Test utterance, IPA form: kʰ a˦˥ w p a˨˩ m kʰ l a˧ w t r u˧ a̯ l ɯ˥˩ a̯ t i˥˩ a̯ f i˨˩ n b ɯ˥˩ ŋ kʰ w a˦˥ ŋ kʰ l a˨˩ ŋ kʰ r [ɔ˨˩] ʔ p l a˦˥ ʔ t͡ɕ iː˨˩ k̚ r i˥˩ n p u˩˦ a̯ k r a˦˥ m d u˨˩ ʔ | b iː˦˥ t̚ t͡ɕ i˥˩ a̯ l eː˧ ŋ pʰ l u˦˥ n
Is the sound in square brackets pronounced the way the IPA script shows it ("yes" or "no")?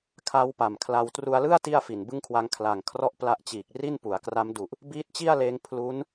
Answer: no